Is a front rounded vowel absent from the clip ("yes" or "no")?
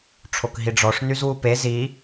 no